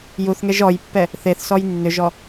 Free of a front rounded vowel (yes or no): no